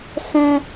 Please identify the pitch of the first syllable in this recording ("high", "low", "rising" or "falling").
high